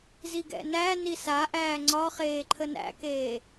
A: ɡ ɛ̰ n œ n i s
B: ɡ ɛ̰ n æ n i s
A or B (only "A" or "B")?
B